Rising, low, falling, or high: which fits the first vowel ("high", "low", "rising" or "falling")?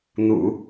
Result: low